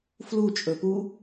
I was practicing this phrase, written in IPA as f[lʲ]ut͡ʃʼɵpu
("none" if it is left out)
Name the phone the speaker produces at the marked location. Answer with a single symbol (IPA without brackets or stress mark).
l